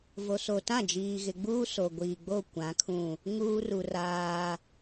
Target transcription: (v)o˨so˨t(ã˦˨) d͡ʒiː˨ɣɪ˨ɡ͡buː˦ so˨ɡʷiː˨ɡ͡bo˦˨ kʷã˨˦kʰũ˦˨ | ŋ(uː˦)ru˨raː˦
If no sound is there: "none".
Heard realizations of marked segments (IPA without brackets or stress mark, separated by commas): v, ã˦˨, uː˦